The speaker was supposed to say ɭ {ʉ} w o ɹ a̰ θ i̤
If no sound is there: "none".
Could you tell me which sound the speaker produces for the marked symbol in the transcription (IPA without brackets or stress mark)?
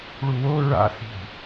u